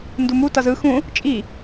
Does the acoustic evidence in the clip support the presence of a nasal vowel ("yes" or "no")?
yes